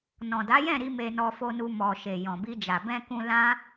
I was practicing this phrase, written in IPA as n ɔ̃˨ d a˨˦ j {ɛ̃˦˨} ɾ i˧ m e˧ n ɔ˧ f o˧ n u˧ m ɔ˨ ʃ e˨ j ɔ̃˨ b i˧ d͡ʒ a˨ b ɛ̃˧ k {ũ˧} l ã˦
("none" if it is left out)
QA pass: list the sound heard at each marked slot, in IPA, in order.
ɛ̃˦˨, ũ˧

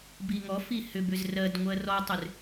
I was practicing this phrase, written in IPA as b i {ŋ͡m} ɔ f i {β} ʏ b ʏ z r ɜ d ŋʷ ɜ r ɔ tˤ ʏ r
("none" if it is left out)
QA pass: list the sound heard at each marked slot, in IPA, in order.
ŋ, h

